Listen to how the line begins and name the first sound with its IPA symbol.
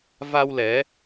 v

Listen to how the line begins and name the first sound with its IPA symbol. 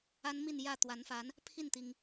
a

